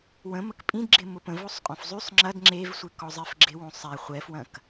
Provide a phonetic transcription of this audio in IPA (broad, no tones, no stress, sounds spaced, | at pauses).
w ə̃ m ə k pʼ ĩ d ɡ͡ǁ ɪ m ʊ p ə̃ v o sˤ qʼ õ f zˤ y sˤ ŋ͡ǁ ɐ d ŋ͡ǁ e v sʷ ɪ k ɔ zˤ ɪ f ɡ͡ǁ ɪ w õ sˤ ɛ χʷ ɛ f w ɐ̃ k